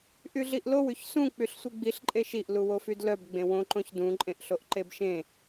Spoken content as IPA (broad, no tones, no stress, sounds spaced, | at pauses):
ʔ y ɮ i ʔ l o w y ç s ũ k͡p y ɬ sʷ i ɡ͡b i ɬ ǃʼ e ʃ i ʔ l u w o f y d l œ b ɡ͡b ẽ w õ ǃ õ ç d ũ ǃʼ ẽ ʔ ɬ o ʔ ǃ e b ʃ ẽ